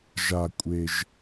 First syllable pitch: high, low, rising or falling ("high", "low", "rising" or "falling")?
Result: low